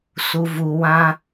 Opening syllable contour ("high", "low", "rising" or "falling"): low